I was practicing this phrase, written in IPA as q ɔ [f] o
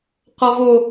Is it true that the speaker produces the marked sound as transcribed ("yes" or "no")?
no